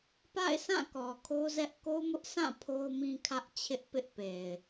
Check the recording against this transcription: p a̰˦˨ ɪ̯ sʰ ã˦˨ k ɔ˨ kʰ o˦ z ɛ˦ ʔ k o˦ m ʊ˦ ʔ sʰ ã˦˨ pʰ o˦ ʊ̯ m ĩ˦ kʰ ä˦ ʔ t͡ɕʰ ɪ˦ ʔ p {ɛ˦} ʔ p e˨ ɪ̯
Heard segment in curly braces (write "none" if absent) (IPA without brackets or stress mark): ɪ˦